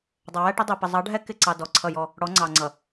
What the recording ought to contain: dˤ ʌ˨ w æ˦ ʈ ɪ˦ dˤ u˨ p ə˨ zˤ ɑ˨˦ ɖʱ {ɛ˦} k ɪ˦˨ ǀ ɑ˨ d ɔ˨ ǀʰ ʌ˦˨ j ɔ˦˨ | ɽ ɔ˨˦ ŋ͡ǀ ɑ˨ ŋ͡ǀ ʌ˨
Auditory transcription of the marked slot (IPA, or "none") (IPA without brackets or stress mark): ɛ˦